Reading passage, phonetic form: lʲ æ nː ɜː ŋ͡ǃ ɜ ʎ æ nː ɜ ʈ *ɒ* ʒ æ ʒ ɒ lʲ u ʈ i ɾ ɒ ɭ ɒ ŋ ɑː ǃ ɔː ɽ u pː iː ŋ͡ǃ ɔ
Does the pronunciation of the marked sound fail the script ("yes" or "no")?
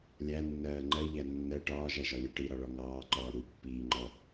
yes